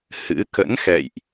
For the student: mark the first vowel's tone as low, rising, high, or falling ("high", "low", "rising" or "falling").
rising